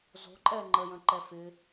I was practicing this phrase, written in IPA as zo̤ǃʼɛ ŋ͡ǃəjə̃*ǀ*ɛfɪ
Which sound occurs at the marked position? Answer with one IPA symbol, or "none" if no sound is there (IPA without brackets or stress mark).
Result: ǃ